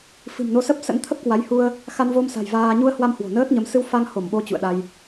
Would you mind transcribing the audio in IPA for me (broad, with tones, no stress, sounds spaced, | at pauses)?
f ɨ̤˨˩ m n o˨˦ s ə˦˥ p̚ s ə̰˧˥ n t̪ʰ ə˦˥ p̚ k w a˨˦ j h u˧ ə̯ | x a˧ n v o˧ m s a̤˨˩ j v aː˧ ɲ u˧ ə̯ h w a˧ m h w o̤˨˩ n əː˦˥ t̚ ɲ ə˨˦ m s ɨ˧ w f a˧ ŋ h o˧˩ m ɓ o˨˦ t͡ɕ ṵ˧˨ ə̯ ɗ a˧ j